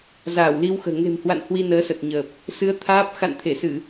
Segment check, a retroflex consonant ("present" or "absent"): absent